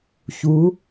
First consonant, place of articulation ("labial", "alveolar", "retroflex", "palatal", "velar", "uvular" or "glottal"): palatal